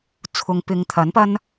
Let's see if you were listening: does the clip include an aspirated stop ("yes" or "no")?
yes